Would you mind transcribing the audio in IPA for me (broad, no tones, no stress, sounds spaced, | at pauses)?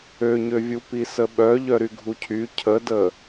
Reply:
ø ɲ ø vʲ u p i s ə ɓ œ ʎ œ ɾ y ɡʱ u cʰ y cʰ ə d ə